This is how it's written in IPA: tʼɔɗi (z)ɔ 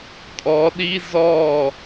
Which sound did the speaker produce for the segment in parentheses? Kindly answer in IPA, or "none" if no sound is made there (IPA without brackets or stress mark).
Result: z